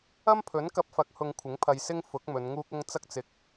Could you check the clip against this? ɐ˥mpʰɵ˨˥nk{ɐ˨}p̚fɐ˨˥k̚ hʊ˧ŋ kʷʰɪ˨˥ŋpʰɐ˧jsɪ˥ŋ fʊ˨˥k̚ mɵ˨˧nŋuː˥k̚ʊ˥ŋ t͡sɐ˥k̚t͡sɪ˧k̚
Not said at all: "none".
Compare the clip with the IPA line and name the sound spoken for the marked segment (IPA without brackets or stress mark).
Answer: ɐ˧